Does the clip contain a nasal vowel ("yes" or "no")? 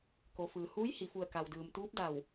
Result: no